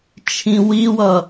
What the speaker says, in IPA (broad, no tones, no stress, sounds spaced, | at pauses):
t͡ʃʰ ĩ w i w ʌ